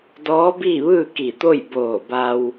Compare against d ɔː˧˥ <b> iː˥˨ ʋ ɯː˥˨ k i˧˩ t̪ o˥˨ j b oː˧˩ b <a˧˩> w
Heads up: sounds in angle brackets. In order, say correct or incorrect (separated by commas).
correct, incorrect